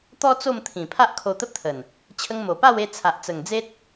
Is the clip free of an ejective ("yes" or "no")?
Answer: yes